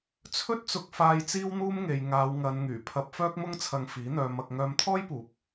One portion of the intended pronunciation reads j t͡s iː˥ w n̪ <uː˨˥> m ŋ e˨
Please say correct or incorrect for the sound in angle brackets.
incorrect: uː˥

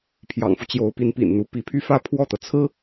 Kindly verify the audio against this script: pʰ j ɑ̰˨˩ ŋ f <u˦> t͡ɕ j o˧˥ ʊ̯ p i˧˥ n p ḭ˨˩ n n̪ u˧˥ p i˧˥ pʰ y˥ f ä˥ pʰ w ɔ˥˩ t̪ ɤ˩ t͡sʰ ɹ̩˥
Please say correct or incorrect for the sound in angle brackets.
correct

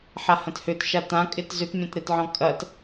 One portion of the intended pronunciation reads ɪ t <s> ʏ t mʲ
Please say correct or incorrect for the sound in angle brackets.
incorrect: z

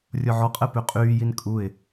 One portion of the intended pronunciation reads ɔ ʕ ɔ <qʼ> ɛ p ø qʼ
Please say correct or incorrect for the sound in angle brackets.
correct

